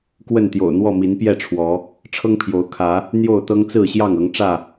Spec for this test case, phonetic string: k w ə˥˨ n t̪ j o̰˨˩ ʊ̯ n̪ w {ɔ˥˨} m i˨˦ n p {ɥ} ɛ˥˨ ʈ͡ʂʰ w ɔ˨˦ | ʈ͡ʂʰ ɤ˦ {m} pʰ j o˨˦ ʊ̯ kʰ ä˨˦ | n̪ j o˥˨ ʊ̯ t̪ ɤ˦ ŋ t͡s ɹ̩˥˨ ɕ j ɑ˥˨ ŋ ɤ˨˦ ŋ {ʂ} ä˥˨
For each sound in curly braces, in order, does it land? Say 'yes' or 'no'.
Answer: yes, no, no, no

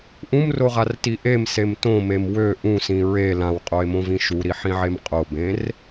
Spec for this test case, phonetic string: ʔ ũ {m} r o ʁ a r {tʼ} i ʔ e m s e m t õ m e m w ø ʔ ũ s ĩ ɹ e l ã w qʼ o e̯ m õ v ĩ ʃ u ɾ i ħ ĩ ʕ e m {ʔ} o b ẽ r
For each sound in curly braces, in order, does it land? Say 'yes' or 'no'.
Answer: yes, no, no

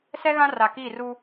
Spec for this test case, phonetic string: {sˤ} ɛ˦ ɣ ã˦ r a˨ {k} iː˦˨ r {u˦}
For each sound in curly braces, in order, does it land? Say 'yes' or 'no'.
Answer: no, yes, yes

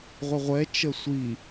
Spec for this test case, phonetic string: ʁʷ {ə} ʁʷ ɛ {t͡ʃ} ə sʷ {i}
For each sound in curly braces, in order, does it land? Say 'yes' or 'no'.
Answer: yes, yes, yes

